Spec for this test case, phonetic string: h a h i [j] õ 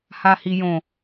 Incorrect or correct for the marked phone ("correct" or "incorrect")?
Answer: correct